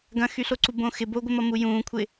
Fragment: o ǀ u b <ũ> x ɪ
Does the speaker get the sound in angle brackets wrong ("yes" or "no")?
yes